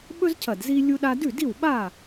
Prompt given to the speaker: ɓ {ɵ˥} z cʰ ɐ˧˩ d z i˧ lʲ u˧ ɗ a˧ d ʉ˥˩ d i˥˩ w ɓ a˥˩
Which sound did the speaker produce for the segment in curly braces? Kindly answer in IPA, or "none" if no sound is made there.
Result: ɵ˥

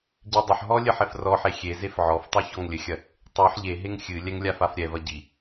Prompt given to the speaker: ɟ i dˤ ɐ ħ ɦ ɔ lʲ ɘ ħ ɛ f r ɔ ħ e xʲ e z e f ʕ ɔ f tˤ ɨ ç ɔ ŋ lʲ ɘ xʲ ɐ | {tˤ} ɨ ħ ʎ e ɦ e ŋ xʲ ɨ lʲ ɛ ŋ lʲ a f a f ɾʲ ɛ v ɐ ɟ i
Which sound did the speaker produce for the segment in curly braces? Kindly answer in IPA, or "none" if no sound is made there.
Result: tˤ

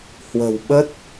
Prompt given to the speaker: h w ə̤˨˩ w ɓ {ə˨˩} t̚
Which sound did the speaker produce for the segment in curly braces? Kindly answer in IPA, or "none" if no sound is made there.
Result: ə˦˥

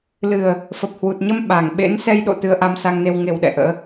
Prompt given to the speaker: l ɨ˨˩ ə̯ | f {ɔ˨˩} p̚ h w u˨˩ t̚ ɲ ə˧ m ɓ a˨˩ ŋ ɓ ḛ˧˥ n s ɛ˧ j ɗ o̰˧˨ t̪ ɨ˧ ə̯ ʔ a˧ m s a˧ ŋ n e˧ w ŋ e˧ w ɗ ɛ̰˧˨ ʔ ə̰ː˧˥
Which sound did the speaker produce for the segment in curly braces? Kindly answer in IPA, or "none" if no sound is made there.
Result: ə˨˩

